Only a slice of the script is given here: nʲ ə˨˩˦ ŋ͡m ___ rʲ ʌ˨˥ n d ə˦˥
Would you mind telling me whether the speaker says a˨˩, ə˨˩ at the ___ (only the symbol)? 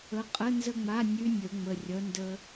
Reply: ə˨˩